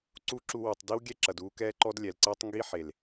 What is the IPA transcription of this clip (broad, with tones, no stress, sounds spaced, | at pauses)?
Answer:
ǀ u˦ ǁ u˧ w u˨ tˤ d i˦ w ɡʲ ɛ˦ ǁ ɐ˨ d uː˧ k ɛː˧ ǃ ɔ˧ d lʲ ɛ˨ l ǀ ɛː˦ tˤ ŋ ɡ i˦ ħ e˨ l